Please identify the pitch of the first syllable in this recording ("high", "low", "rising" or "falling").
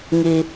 high